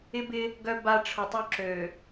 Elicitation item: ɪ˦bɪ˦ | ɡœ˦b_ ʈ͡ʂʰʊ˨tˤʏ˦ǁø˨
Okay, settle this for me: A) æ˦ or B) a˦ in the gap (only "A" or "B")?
B